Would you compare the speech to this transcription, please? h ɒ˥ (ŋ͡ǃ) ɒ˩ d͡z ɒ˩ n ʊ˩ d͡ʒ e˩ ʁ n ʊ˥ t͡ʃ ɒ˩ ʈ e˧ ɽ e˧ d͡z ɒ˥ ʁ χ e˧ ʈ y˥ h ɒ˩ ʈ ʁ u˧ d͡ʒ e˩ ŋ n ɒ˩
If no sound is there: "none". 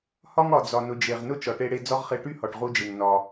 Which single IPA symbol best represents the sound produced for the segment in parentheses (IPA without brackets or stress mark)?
ŋ